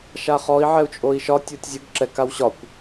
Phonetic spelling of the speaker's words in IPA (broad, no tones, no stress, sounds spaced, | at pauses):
ʃ a χ ɔ i̯ ʕ ɛ u̯ t͡ʃʼ o i̯ ʃ ɒ tʲ o tʲ zʲ ə ɡ ǁ ɛ k a w ɕ ɒ kʷ